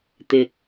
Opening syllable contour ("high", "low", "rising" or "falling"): low